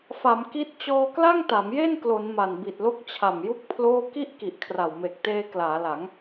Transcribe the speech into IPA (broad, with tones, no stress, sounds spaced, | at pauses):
f a˩˦ m k i˦˥ t̚ t͡ɕ ɔː˧ k l a˥˩ ŋ t a˩˦ m j e˥˩ n k l o˩˦ n m a˨˩ n b i˨˩ t̚ l o˦˥ k̚ t͡ɕʰ a˨˩ m j u˦˥ k̚ pʰ l oː˥˩ k i˥˩ ʔ k i˨˩ ʔ kʰ r a˨˩ w m e˨˩ k̚ t eː˧ k l aː˩˦ l a˩˦ ŋ